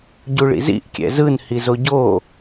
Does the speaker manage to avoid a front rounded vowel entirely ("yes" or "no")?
yes